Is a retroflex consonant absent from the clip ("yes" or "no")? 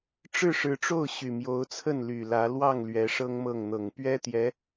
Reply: no